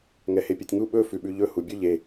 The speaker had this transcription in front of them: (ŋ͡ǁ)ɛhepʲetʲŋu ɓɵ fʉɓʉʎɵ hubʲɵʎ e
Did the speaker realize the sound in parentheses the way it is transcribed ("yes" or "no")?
no